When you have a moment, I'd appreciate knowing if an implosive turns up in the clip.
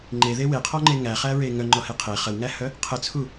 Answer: no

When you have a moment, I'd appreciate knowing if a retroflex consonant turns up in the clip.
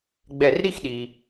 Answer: no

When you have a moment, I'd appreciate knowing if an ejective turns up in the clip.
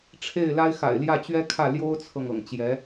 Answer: no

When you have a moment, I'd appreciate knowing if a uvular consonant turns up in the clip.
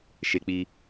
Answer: no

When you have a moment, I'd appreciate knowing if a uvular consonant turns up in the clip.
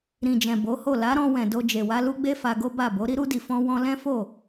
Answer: no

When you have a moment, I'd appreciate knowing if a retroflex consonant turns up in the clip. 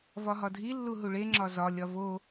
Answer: yes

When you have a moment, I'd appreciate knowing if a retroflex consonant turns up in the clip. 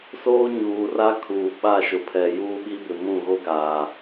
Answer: no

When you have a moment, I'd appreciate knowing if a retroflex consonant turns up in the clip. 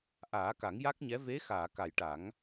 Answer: yes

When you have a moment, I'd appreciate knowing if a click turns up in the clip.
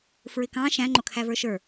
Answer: yes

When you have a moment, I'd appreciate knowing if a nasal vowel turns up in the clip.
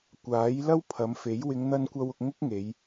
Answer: no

